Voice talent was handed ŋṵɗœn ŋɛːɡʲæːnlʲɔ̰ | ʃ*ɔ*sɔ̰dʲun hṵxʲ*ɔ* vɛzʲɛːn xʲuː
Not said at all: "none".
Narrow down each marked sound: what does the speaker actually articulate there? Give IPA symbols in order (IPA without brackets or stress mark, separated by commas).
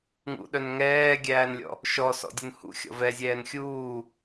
ɔ, ɔ̰